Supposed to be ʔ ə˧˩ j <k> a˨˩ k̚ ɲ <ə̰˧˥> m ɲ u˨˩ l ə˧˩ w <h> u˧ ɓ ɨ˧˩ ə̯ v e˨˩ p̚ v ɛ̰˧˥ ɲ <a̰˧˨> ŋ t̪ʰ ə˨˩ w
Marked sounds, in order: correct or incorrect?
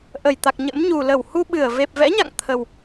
incorrect: t̪, correct, correct, correct

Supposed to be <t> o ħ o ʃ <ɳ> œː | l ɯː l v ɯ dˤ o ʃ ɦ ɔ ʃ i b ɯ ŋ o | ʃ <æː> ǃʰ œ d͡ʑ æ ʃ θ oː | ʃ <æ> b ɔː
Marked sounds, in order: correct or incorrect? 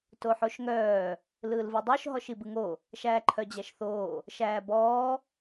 correct, incorrect: ŋ, correct, incorrect: æː

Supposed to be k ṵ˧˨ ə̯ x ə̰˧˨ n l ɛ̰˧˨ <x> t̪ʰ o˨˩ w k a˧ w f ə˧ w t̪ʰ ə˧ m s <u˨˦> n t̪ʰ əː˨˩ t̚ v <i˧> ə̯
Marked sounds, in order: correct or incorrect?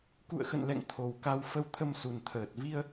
incorrect: ŋ, incorrect: u˨˩, correct

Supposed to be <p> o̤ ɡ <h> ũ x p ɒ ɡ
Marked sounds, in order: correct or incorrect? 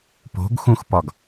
correct, incorrect: x

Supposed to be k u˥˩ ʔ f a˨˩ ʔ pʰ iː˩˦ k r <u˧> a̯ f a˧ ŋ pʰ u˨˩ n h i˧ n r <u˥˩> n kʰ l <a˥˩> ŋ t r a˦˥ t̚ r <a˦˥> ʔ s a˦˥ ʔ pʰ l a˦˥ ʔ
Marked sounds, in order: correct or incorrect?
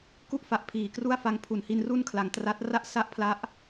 incorrect: u˥˩, correct, incorrect: a˨˩, correct

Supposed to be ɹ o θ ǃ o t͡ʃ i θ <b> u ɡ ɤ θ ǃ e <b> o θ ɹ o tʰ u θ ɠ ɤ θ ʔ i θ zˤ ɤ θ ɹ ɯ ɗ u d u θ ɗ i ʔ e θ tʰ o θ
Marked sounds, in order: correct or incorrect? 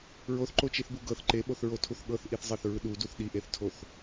correct, incorrect: ɓ

